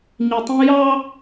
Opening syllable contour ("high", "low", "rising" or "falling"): low